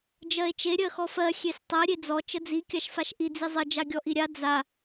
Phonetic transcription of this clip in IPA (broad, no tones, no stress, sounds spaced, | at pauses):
d͡ʒ ɜ e̯ t͡ʃ e ɾʲ ɜ x ɔ f ɜ xʲ e s tˤ ɜ ɾʲ e d͡z ɔ t͡ʃ ə d͡z i kʲ a ʃ f a ʃ ʔ i d͡z i zˤ ə d͡ʒ a ɡʲ ɔ ʔ i ɾʲ a d͡z a